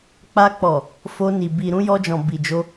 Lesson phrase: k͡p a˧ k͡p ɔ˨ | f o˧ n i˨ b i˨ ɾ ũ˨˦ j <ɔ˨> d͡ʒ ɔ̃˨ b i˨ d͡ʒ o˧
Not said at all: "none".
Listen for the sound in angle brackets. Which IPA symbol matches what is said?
ɔ˧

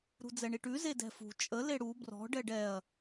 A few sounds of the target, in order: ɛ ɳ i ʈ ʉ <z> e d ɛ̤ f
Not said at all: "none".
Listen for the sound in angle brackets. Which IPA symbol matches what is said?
z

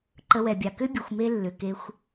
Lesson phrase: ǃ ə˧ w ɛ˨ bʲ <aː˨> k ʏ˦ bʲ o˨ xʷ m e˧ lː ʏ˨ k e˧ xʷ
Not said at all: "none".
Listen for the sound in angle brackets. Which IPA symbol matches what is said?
a˨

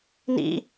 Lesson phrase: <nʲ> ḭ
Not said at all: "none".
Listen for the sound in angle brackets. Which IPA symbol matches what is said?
n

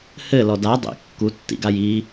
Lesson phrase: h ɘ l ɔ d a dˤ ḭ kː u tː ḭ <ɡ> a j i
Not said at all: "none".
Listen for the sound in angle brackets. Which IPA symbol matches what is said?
ɡ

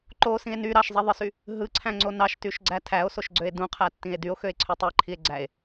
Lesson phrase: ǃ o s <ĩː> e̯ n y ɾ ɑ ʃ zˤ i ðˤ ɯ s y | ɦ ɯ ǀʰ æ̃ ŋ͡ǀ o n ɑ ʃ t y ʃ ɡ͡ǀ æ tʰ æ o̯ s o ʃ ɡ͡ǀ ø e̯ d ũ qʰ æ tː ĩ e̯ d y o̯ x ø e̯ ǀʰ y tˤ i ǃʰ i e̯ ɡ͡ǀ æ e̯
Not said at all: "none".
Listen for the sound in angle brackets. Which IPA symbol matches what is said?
ĩ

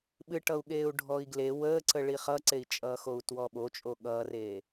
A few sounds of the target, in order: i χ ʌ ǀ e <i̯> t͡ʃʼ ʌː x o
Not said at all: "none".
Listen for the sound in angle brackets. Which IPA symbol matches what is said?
i̯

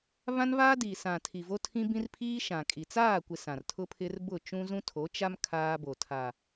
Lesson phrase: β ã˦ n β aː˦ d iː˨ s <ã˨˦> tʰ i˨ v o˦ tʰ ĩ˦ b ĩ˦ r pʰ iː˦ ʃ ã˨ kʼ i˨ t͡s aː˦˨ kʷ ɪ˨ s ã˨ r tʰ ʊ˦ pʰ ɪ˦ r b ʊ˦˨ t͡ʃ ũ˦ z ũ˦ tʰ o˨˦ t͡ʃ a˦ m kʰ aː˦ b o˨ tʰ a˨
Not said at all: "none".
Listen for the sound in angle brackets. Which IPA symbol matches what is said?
ã˨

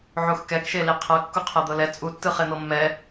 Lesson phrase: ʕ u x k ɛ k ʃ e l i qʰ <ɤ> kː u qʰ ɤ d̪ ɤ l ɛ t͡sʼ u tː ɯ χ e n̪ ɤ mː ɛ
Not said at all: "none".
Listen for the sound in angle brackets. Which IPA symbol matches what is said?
ɤ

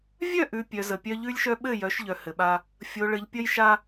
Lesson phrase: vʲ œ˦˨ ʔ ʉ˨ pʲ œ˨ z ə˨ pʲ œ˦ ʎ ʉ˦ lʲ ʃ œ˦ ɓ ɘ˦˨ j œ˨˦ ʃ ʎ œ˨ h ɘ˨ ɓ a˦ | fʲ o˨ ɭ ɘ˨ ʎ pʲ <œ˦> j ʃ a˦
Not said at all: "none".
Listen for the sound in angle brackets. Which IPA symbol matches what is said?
ə˦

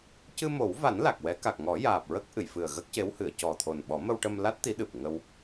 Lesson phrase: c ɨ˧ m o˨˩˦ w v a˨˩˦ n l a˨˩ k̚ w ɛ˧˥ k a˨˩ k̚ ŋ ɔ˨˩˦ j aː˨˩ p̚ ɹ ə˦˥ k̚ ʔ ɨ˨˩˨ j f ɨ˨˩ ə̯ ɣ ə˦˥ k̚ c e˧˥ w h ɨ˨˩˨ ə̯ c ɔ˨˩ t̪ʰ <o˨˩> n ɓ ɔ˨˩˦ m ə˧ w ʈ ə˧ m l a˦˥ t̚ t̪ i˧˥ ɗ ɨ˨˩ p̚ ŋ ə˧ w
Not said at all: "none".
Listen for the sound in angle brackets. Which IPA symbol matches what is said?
o˨˩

